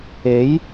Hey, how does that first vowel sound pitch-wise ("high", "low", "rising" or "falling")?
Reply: rising